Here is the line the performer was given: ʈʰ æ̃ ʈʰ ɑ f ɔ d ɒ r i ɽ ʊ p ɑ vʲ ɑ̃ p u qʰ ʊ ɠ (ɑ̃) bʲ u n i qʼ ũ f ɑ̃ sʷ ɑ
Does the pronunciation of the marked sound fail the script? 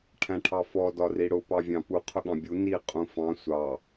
no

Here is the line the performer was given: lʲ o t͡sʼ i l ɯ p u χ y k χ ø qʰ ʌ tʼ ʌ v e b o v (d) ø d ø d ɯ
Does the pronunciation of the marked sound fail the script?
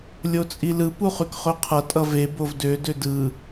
no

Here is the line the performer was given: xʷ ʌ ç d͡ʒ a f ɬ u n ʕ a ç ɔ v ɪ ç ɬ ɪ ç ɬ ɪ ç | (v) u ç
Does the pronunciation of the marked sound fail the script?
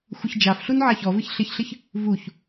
no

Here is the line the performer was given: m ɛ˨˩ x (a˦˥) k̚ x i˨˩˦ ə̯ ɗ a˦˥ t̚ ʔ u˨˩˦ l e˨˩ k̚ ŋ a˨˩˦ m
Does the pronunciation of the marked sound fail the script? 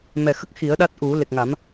yes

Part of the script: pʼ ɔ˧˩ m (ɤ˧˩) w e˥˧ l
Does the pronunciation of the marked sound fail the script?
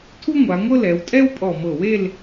no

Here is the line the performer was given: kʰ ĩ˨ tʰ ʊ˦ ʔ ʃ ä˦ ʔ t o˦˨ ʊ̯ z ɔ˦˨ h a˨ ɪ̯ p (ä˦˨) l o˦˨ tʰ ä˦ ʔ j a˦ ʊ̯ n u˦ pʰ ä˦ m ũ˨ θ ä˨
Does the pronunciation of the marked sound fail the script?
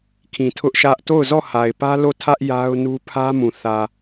yes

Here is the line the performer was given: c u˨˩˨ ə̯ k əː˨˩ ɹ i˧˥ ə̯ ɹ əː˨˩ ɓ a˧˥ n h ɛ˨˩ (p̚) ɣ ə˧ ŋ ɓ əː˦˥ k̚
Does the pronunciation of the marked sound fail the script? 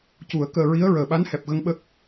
no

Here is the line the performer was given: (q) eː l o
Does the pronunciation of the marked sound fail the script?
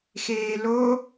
yes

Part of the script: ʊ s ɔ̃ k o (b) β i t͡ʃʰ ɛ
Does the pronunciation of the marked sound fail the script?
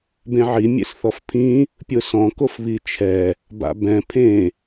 yes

